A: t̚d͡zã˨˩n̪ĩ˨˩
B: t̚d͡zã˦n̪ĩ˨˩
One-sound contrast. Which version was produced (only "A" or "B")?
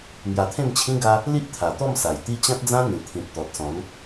B